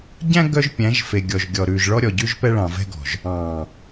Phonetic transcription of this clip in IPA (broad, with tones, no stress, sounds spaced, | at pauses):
ɟ æ̃˦ ɡ œ˦ ʒ pʲ æ̃˨˦ ʒ f e˨ ɡʲ ɔ˨ ʒ ɡʲ ɔ˨ ɾ ʉ˨ ʒ ɭ ɔ˦ ɾʲ ɔ˨ ɟ ʉ˦ ʒ p ɛ˦ ɭ ɑ̃˨ v ɛ̤˦ ɡ ɔ̤˨ ʒ | ɑ̃ː˨